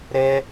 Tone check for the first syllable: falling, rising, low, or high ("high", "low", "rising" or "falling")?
high